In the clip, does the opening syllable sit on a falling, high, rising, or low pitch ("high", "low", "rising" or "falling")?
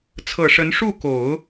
low